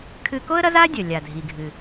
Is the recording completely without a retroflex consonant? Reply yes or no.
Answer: yes